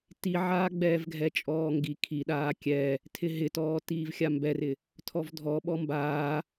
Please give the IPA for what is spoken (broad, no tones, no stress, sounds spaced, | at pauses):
t i ʕ aː ɡ͡b ɛː v ɡʱ ɛ t͡ʃʼ ɔː ŋ ɡ i kʰ i ɗ aː kʲ ɛ | tʰ ɪ ɦ ɪ t ɔː t iː v xʲ a m b ɛ r ɪ | tʰ ɔ v dʱ ɔ ɓ ɔ m b aː